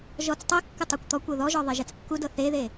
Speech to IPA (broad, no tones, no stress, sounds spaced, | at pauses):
ʒ ɔ t͡s tˤ o kː ɯ tˤ u kʷ t̪ ɔ kʷ o ð ɔ ʒ ɔ ðˤ e ʒ ɛ t͡s kː u d ɤ θ e ð e